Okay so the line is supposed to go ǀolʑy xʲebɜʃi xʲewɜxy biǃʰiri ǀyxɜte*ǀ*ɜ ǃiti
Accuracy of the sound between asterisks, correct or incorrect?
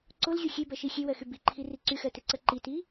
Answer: correct